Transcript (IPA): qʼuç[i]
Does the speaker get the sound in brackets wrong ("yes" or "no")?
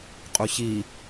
no